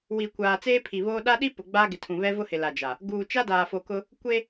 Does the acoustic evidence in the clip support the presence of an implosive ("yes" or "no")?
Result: yes